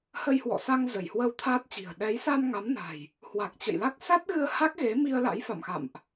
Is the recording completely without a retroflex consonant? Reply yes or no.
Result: yes